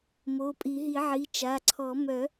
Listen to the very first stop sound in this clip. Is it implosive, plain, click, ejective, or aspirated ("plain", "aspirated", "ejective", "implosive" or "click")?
ejective